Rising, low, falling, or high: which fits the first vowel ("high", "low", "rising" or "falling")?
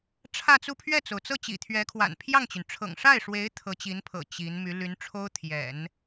falling